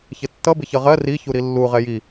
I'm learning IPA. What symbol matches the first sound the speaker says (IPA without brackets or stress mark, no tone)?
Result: ç